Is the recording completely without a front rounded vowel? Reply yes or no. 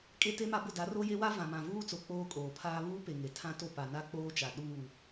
yes